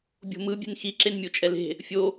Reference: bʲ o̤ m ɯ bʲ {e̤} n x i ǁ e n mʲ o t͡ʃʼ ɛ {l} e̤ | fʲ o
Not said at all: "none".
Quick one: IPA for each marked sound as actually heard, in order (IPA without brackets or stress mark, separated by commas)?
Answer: e̤, l